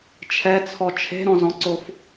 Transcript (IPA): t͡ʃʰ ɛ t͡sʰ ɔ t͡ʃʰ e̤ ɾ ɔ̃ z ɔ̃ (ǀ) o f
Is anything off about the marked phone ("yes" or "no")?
no